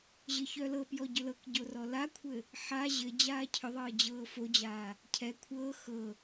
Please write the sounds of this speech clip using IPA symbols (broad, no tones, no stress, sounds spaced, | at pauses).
ʑ ɘ ç œ l ɤ p j ɔ ɟ ʏ l ɤ k ɟ o r ɔ l a kʷʰ ɘ | ħ a ʑ ɘ d͡ʑ aː cʰ ʏ ðˤ ɤː d͡ʑ ɤː f o d͡ʑ aː | cʰ ɛ kʷʰ ɤː x ɤ